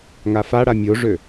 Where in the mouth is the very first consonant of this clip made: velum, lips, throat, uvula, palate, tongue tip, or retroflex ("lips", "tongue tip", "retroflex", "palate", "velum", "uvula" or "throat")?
velum